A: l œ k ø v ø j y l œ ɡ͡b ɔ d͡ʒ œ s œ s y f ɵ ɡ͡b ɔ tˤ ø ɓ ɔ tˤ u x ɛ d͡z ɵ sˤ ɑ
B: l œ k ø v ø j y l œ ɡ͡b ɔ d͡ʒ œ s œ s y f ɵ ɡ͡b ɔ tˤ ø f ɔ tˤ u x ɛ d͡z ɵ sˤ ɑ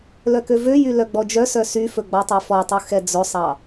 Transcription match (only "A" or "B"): B